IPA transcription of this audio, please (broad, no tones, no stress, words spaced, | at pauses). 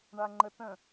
ɳaŋ͡ǃətə̃